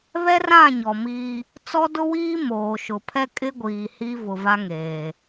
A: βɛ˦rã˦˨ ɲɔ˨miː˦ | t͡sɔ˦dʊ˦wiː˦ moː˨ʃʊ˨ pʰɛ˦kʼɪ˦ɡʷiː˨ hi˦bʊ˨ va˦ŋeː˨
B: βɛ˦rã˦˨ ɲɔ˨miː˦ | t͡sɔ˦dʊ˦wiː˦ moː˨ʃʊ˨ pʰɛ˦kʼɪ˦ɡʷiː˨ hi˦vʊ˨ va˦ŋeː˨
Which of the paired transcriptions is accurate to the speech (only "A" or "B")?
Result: B